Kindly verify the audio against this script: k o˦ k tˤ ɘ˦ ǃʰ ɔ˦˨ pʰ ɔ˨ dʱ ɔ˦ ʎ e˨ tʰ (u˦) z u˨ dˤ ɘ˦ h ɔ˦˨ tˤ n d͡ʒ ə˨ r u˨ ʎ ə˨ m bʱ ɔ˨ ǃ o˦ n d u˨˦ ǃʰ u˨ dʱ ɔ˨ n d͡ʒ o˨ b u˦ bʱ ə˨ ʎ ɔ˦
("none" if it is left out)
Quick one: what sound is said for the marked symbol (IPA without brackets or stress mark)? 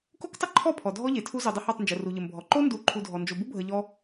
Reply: u˦